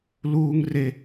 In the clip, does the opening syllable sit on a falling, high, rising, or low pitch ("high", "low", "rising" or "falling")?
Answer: high